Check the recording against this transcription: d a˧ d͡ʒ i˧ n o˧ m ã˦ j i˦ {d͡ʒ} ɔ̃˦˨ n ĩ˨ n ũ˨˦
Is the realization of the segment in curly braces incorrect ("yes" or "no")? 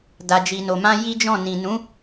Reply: no